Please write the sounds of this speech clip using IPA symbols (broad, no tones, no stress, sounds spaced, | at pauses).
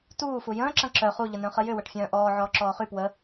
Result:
t uː f u j ə̃ː ǁ ɐ̃ ǁ œ χ u ʎ ə n œ̃ χ ə j ʏ w ɐ ʈ fʲ œ̃ː ʔ ɔː ʕ ɔː ǁ ɔː χ y p w ə